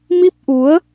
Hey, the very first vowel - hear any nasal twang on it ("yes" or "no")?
no